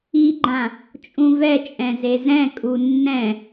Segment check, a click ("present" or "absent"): present